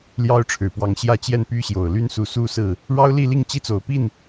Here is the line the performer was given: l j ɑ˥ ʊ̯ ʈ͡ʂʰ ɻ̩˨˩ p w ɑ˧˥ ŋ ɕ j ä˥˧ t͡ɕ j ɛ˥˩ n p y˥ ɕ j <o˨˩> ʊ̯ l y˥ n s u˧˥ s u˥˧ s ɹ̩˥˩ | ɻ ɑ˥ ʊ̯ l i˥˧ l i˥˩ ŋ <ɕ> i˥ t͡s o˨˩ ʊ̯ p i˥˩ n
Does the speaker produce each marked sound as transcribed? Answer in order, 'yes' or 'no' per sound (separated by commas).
yes, no